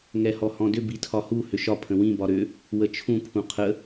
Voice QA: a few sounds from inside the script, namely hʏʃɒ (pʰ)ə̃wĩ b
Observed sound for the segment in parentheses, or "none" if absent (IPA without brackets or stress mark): pʰ